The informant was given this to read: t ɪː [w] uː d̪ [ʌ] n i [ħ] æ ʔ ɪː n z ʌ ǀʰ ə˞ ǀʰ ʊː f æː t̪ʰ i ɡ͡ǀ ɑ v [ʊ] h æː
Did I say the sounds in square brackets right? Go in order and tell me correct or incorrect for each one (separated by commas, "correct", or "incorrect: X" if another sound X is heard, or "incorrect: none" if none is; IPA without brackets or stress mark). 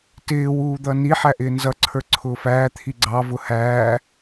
correct, correct, correct, correct